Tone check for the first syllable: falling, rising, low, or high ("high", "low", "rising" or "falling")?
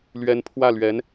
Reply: rising